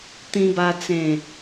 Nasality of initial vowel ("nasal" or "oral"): nasal